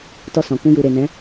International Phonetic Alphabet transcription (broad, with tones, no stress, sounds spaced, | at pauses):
t ɔ˧ s ɔ̃˨ k ũ˧ j u˨ ɾ e˨ n ɛ̃˨˦